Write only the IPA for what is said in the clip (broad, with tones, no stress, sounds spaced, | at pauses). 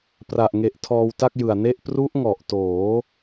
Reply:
p r a˨˩ ʔ ŋ e˨˩ ʔ tʰ ɔː˧ w t a˥˩ k̚ j ɯ˨˩ a̯ n e˥˩ ʔ p r u˦˥ ʔ ŋ ɔ˨˩ ʔ t oː˩˦